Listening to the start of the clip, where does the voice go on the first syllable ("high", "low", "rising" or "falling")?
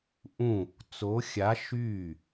falling